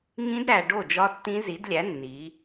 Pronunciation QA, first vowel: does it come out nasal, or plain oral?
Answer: nasal